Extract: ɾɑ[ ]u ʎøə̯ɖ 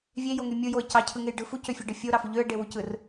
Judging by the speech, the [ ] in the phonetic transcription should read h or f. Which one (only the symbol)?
f